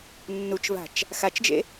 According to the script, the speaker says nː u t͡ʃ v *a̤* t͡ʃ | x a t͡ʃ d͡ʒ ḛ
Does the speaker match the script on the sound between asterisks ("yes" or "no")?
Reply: yes